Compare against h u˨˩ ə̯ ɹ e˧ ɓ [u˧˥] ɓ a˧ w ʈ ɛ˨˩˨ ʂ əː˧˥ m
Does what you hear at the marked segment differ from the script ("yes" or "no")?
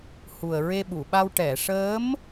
yes